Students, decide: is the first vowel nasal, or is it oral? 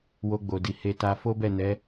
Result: oral